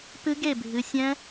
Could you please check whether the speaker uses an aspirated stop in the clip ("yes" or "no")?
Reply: no